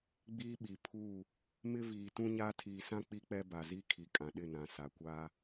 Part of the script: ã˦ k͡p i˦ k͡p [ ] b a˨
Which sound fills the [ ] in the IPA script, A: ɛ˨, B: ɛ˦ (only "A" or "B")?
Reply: B